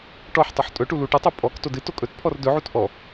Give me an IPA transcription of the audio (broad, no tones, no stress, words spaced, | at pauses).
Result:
ʈɔħtˤuħ tʼɵʈu luʈɨtˤo pʼɔk todɨto kʼɵtpʰɔr dɵʕut ʔɔ